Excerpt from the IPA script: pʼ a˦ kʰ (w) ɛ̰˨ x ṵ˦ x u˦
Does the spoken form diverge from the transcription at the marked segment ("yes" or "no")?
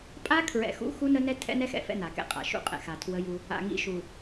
yes